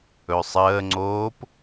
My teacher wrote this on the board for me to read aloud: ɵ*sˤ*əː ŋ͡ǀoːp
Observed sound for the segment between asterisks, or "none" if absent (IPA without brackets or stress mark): sˤ